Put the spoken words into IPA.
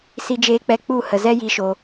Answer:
si˧d͡ʒeː˧k͡pɛ˧ k͡pu˦˨ hə˧zɛ˦ ji˧ʃo˧

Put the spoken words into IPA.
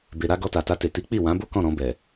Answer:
be˨ɾa˧ ɡɔ˧ta˨ta˧te˨ ti˨˦k͡pi˦˨wã˨˦bo˦ kɔ̃˦˨ ɾɔ̃˧ bɛ˨

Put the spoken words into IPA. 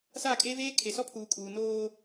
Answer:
sa˦˨kʼeː˦veː˦ kʰe˨sɔ˦pʰuː˨kʼuː˨ noː˦

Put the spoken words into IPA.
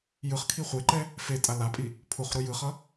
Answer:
jɯχkʰi χʷeǃɛ | fe tʼalapʼi | pʰuχ ɾujɯχʌ

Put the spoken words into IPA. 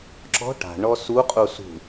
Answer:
ǁɔ̤ ʈa̤ ɳɔsuqʼu sṳ

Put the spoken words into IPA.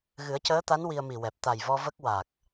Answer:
ɣɨ˨˩˦ə̯cəː˧˥t̪a˧˥n wi˧ə̯mi˨˩wɛ˨˩p̚ t̪a˨˩jvɔ˧ və˦˥k̚wa˨˩k̚

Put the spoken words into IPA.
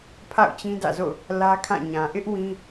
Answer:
pʰa̰˦˨ʊ̯t͡ɕĩ˦ dä̰˦˨zo̰˦˨ʊ̯ | lä˦kʰã˦˨ɲã˨ ʔɪ˦ʔ wĩ˦

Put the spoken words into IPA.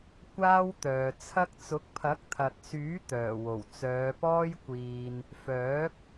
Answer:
kʷaː˥wt̪œː˨ t͡sʰɐ˥k̚ t͡sʊ˨˥k̚pʰɐ˨˥k̚t̪ʰɐ˨t̚syː˨˥ t̪œː˨˩wo˨˩wt͡sœː˨˧pɔː˥j kʷiː˧n | fœː˨˥k̚

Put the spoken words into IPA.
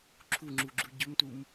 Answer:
ǁʰuŋ͡ǁuɡ͡ǁu ɟɵmtum

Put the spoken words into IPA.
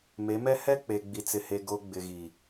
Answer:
me˨˦mɛ˦ hɛ˦k͡pe˨ ɡ͡bi˨t͡sɪ˨he˨ ɡo˨ ɡ͡bɪ˨ɣi˨

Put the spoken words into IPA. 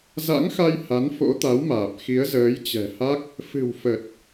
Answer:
za̰˧˥ŋxa˧j ha˨˦nfo̰˧˥t̪a˨˦wmaː˨˩p̚ xi˨˦ə̯zəː˨˦jt͡ɕɛ̤˨˩ha˦˥k̚ | fɨ̤˨˩wfə˨˩t̚

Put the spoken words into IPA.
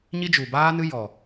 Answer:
ɲi˦d͡ʒu˨baː˦nɨ˦ jɔ˨

